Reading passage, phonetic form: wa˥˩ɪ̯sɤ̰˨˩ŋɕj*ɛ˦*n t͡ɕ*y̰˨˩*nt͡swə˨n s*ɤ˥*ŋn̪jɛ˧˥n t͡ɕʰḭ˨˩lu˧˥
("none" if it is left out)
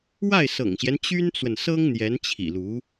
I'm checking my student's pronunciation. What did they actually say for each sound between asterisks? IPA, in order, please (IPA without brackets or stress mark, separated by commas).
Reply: ɛ˦, y˥, ɤ˥